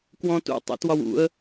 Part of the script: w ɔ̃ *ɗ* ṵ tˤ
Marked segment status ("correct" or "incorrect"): incorrect